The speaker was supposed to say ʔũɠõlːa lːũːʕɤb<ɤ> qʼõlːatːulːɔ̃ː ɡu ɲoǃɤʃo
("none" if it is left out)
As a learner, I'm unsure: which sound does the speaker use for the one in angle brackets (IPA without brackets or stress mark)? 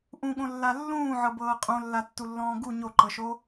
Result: ɤː